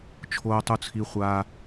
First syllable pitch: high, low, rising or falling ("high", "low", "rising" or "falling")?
high